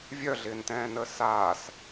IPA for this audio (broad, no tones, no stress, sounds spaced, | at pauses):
vʲ œ ɮ ɪː n t ɛ̃ː n əː s aː s